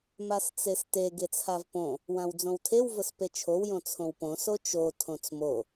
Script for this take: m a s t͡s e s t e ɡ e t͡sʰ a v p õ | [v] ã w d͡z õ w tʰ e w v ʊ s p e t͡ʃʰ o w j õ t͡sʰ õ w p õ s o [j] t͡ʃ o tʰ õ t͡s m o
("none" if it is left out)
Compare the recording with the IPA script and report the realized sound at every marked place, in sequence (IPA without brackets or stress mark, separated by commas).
w, none